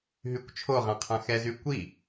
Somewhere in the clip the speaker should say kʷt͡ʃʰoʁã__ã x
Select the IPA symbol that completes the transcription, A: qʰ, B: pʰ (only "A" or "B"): A